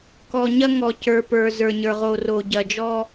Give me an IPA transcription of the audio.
k ɔ˨ ɲ ɐ˦ ŋ ɔ˨ c ə˞˨ p ə˞˨ z ə˞˨ ɲ ə˞˨ ʁ o˨ r o˨ ɟ ɐ˨ d͡ʒ ɔ˦

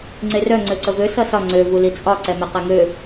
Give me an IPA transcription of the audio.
ŋ͡ǀ e r œ ŋ͡ǀ ø ǀ ə v ø s ʌ s ɒ ŋ͡ǀ ø v u l i t͡sʼ ɒ ǀ ɛ m ɛ q ɛ ŋ ø

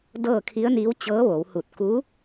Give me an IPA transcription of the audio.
d ɤː˥˨ kʰ i˧˥ ə̯ n iː˧˥ w t͡ɕ ɤː˧˥ ʋ o˩˧ w h u˧˩ t̚ k u˧˥

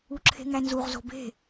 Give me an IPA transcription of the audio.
u ǁʰ e̤ ŋ æ n z u ʁ z o̤ b e̤

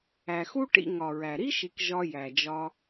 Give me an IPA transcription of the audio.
æ˩ x u˥ ʈ ḭ˨ ŋ ɒ˩ ɹ æ˩ ɾ i˥ ʃ i˨ k ʒ ɒ˨ j æ˩ d͡ʒ ɒ˨

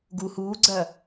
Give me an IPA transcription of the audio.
ɡ u h uː ɡ͡ǀ ɐ

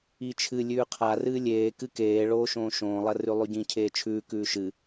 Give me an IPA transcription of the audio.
i t͡ʃʰ ɨ lʲ ʉː qʰ a r ɨː lʲ eː k ɨ k eː ɭ oː ʃ õː ʃ õː lˠ ɐ r ʉ lˠ ʉ ɟ ĩ cʰ eː t͡ʃʰ ʉː k ʉː ʃ ɨ

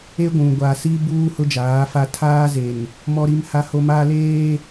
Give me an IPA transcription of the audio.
e˦ ɡʷ ũ˨ ɡʷ a˨ s i˦ b uː˦ h ʊ˦ d͡ʒ aː˨˦ f a˦ tʰ aː˦ z e˨ n | m ɔ˦ ɾ i˦ m h a˦ h o˦ m aː˦ l eː˦

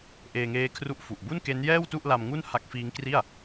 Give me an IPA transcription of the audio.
ʔ eː˧ ŋ eː˦˥ kʰ r u˦˥ ʔ f u˨˩ ʔ b u˥˩ n k e˦˥ n j ɛː˥˩ w t u˥˩ ʔ l a˧ m ŋ u˥˩ n h a˦˥ k̚ f iː˦˥ ŋ k r i˥˩ a̯

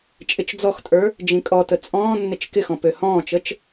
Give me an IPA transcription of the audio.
t͡ʃʼ ɪ t͡ʃ d͡z ɔ x tʼ ə˞ | d͡ʒ ĩ kʼ ɔ t ə t͡sʼ ɔ̃ː nː ɪ t͡ʃ k ɪ x ɔ̃ p ø h ɔ̃ː t͡ʃ ə t͡ʃ

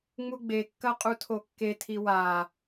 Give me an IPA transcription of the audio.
ŋ͡m u ɡ͡b e kː ɐ qʼ u tʰ o kː e tʰ i w a

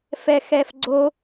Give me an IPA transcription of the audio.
f ɛ x ɛ f ɡ͡ǀ o

